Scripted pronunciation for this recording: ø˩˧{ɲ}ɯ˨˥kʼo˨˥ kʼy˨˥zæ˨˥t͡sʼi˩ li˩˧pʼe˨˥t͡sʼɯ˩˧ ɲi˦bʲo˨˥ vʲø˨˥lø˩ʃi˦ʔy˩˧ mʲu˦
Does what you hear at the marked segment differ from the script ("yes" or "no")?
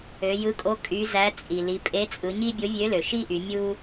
yes